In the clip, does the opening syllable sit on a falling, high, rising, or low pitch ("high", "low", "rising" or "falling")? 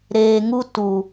low